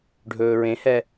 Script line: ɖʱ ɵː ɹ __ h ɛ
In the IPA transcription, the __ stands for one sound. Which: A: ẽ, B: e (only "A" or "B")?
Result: A